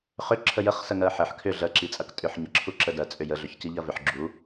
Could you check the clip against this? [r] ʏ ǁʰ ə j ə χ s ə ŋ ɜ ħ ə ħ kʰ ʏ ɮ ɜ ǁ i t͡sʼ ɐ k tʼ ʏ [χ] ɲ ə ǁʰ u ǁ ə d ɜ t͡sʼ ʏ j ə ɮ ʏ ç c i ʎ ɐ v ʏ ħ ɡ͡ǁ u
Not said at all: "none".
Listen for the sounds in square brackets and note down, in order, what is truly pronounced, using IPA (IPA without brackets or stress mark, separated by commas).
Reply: χ, ħ